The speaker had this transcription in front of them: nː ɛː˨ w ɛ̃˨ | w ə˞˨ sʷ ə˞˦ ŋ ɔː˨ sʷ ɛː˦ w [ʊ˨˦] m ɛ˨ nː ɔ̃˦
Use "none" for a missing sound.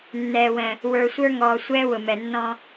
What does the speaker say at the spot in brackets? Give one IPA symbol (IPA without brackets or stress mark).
ʊ˨